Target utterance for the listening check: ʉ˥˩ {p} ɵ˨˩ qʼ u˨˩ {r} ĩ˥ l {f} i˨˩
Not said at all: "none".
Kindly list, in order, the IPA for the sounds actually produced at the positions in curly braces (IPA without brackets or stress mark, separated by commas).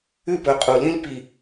p, l, p